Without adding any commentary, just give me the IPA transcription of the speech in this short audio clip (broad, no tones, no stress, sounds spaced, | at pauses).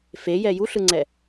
f e j ɛ j u ɬ ɯ ŋ͡ǀ ɛ